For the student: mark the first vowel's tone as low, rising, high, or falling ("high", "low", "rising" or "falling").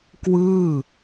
falling